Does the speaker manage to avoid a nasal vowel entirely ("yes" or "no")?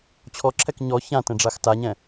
no